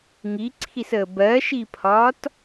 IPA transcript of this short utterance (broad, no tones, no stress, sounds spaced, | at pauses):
ŋ i ǀʰ i s əː b ɜ ʃ i pʰ ɒː t